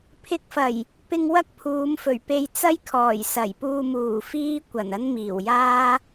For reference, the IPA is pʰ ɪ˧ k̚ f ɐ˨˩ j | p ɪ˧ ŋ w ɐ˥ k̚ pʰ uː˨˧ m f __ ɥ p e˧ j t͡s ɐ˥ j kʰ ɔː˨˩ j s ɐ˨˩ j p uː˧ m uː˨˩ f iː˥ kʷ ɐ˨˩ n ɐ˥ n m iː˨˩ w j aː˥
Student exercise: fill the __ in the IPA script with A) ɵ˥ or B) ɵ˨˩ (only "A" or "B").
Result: B